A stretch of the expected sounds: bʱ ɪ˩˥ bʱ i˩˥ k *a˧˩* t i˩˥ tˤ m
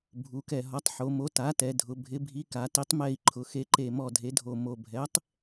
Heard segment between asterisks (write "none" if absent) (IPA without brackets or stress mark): a˩˧